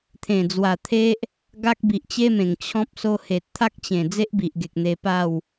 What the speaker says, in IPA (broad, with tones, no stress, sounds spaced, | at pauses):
t̪ʰ ẽ˨˩ d͡z w a˨˩ t̪ʰ e˦ ʔ | ɡ a˦ k̚ b i˨ ʔ t͡ɕ e˦ m ẽ˨˩ ŋ t͡ɕʰ ɔ̃˦ p̚ s o˧ h e˨ t̚ t̪ʰ a˦ k̚ t͡ɕ ẽ˨˩ d͡z e˦ ʔ b i˨ ʔ ɡ e˨ k̚ n̪ e˧ p a˥˧ w